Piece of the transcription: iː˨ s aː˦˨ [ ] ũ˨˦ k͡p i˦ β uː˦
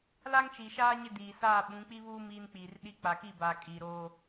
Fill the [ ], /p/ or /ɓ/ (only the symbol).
ɓ